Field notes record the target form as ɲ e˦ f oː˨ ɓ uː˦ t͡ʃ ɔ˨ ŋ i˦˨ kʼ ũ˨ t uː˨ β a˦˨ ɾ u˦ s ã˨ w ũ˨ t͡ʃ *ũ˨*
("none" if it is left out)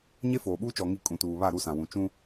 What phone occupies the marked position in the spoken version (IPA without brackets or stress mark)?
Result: ũ˦